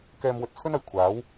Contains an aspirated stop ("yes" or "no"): yes